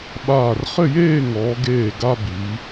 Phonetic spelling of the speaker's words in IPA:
ɓ aː˧˩ r χ ɘ˥˧ j eː˥˧ ŋ ɔː˩˧ ɡ eː˧˩ ɡ a˧ b i˩˧

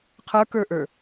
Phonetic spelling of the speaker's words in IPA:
qʰ ə˞ k ə˞ ʔ ə˞

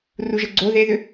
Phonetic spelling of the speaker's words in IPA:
r u ʒ ə ɡ͡ǀ o ð e ð ʏ

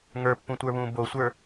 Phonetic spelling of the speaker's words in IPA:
ŋ ə˞ pː ũ tʷ ə˞ β ũː b o sʷ ə˞

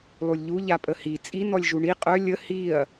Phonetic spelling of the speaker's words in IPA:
lˠ u lʲ ʎ u ʎ a pʼ ə h i t͡sʼ i n ɔ lʲ ʒ u ɳ i qʼ œ lʲ ə h i ɐ̯

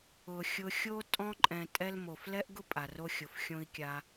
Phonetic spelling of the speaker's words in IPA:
ʊ˨ xʲ ʊ˧ xʲ o˦ tʼ ɔ̃˧ ǃʼ ɛ̃˨ tʼ ɛ˦ l m o˨ f l ɛ˦ ʔ ɡ ʊ˦ pʼ a˨ r o˧ xʲ ʊ˨ f xʲ õ˧ i̯ kʲ a˧

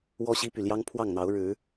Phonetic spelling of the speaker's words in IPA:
w ɔ˦ ɕ i˦ p y˨ l j ɑ˦ ŋ pʰ w ɑ˥˨ ŋ n̪ ɑ˨˦ ʊ̯ ɻ ɻ̩˨˦

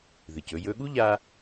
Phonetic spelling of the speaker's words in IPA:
ð ɨ˩ c ɵ˧ j ɵ˧ ɠ u˥ ʎ a˧

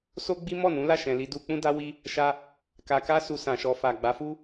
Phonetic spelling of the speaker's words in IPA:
s o˦ ɡ͡b i˦ m ɔ˦˨ n ũ˨˦ l a˦˨ ʃ ɛ̃˨ l i˧ d u˦ k͡p ũ˦ d a˦ w i˦ | ʃ a˦ | k a˧ k a˦ s u˧ s ã˨ ʃ ɔ˧ f a˨ ɡ͡b a˨˦ f u˦

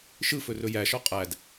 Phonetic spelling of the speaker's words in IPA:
ʃ ɯ f ɵ r ɵ j æ ʃ ɔ qʼ æ d

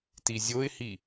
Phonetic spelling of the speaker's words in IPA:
t i zʲ o ɪ̯ h i

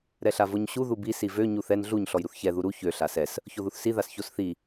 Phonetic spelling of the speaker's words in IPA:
ɾ ɛ ɬ a v o ɲ ɕ u ð u b i s i v ø ɲ u θ ɛ n ɮ u ɲ ɬ ɔ j ɾ u θ ç ɛ ð u ɾ u ç ø ɬ a s ɛ s | ç o ð u θ s i ð a s ç o s θ i

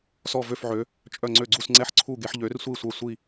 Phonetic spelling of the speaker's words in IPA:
s ɔ˧˩ v ø˧˩ f ʕ ø˩˧ | t͡ʃʼ œ˧˩ ŋ͡ǀ ø˧˩ ɡ͡ǀ u˧˩ s ŋ͡ǀ ɛ˧˩ ħ ǀʰ u˧˩ ɡ e˩˧ ħ ʎ ø˩˧ r sʷ i˧˩ sʷ œ˧˩ sʷ i˧˩

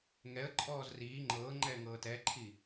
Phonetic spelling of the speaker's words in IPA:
ŋ ɛ ə̯ ǃʼ ɔː z r iː ŋ͡ǃ ɤ ŋ͡ǃ ɛ ŋ ɤː t ɛ ǃʰ i

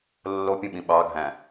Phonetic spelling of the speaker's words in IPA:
lː o pʲ ũ ɓ ĩ ɓ ɑ ɡʱ æ̃

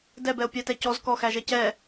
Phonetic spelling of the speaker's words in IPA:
d ɛ b ɛ o̯ pʲ æ t ɛ c ɔ z k ɔ x æ ʒ ɛ c ɛ

